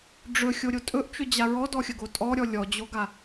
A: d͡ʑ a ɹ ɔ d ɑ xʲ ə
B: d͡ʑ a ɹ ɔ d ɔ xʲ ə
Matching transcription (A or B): B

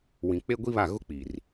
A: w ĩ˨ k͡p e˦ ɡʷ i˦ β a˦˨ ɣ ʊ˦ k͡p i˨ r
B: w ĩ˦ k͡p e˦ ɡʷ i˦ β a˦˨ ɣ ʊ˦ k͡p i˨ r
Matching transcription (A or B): A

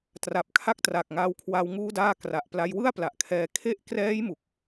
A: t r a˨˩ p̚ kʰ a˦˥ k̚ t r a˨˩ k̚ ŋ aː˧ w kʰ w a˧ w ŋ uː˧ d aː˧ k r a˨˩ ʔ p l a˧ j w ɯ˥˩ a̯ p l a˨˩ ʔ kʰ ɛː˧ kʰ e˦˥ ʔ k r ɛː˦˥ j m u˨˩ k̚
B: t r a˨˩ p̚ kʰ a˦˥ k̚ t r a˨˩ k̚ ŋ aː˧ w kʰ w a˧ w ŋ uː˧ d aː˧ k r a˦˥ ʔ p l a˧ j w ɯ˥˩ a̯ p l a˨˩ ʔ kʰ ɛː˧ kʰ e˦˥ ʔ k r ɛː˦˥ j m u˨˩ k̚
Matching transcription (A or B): A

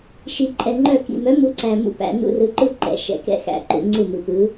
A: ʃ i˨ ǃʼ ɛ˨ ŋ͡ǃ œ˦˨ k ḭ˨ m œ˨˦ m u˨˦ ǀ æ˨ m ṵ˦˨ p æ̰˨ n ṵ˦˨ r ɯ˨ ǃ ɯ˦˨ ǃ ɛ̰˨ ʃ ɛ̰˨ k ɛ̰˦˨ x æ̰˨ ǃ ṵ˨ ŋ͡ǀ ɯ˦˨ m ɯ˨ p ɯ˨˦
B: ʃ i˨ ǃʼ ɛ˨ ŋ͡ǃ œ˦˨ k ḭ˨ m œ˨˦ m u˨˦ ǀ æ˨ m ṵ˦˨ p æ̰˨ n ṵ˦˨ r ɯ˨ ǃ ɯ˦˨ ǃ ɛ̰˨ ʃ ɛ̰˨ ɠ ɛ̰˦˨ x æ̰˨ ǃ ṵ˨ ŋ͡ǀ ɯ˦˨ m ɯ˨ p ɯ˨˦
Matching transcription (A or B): A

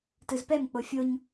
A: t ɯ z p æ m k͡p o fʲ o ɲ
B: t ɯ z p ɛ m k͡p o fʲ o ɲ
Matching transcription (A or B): B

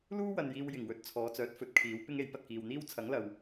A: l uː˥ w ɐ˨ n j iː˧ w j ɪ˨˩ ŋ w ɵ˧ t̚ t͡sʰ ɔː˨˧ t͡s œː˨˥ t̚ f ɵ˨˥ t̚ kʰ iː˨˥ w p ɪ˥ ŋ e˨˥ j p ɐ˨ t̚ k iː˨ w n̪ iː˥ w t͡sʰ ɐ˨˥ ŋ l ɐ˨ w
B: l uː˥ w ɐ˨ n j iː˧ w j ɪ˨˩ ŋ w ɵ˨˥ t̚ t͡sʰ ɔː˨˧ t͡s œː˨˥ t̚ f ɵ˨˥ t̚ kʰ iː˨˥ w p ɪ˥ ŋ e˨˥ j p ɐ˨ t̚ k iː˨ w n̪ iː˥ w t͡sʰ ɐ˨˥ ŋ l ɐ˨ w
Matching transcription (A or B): A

